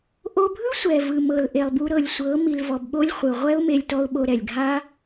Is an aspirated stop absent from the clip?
yes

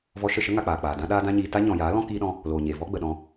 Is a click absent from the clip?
yes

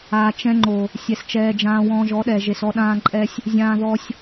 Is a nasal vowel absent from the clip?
no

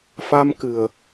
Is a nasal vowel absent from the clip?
yes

